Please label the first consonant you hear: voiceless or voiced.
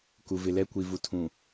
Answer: voiceless